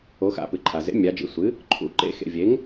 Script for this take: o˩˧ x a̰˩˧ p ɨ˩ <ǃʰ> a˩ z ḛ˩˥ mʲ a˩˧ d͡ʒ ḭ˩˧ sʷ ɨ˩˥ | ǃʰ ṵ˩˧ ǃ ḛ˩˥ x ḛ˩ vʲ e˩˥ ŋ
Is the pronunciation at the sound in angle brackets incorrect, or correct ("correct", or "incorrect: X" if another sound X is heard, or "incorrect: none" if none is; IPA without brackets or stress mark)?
correct